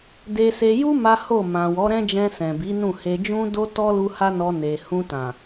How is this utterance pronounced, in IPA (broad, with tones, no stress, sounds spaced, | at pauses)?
d e˧ s e˧ j u˦ m a˦ h o˦˨ m ã˨ w ɔ˨˦ ɾ ɛ̃˦ d͡ʒ ɛ̃˧ s ɛ̃˨ b i˨˦ n ũ˦˨ h e˧ d͡ʒ ũ˦ d o˦ t ɔ˦ l u˧ h a˦ n ɔ˧ n e˨ h ũ˧ t ã˨